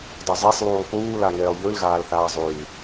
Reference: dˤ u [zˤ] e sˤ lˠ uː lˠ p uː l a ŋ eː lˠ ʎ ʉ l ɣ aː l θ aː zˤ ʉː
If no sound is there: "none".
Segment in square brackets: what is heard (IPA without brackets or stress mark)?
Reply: zˤ